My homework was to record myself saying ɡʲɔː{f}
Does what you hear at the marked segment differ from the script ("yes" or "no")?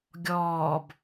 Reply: yes